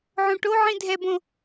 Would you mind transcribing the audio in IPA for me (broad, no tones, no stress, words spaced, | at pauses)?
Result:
ʕõʈoʕĩ dʱɛbõ